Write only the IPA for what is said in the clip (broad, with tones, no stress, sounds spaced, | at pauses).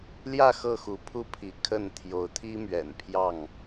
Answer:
l j ä˥˨ x ɤ˥˨ x u˨˦ pʰ u˦ pʰ i˨˦ kʰ ə˥˨ n t̪ʰ j o˨˦ ʊ̯ t̪ʰ i˦ m ɥ ɛ̰˨˩ n pʰ j ɑ˥˨ ŋ